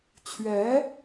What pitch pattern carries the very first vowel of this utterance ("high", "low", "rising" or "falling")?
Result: rising